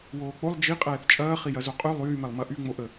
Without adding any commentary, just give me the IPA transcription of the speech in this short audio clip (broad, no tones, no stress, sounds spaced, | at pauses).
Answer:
w oː k͡p o lˠ d͡ʒ i qʼ ɛː θ t͡ʃʼ ɐː χ i j ɐ z o qʼ y lˠ yː m ɛ lˠ m ɐ ʔ y ŋ͡m o ʔ ə